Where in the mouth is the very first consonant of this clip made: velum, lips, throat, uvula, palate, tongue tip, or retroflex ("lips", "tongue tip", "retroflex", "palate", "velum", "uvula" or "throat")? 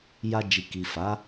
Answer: palate